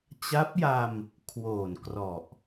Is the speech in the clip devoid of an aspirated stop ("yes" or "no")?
no